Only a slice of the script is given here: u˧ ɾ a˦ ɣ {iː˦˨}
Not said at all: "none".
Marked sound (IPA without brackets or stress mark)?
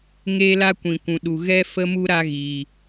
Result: iː˨